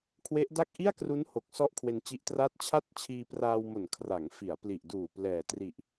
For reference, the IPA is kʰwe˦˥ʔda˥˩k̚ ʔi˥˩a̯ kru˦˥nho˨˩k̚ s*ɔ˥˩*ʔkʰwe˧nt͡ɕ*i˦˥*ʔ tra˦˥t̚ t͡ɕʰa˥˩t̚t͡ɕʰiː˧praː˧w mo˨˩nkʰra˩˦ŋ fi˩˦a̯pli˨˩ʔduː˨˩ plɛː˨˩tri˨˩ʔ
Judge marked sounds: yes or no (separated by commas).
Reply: yes, yes